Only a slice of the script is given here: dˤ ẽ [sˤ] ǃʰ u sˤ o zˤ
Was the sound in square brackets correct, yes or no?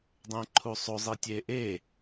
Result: no